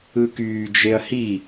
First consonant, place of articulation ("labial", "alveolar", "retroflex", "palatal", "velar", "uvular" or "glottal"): velar